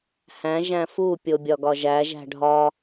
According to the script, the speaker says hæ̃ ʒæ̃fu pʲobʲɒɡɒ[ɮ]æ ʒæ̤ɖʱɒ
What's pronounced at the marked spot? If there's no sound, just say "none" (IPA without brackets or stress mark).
ʒ